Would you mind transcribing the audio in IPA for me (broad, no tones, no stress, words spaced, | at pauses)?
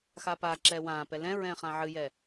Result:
xapaǁɛː wãːpɛ lɛ̃ɹɛ̃ː χãʕɨjɛ